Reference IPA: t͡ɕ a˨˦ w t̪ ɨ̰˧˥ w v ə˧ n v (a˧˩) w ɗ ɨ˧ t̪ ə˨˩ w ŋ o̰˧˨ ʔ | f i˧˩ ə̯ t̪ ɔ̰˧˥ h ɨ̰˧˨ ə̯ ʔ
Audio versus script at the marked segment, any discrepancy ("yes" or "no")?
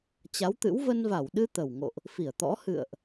no